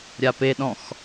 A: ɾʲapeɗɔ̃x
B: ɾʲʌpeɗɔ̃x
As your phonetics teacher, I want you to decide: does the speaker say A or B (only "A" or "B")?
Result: A